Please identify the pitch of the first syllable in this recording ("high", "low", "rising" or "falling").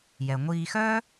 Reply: low